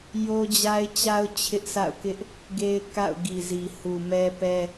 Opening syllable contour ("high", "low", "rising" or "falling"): high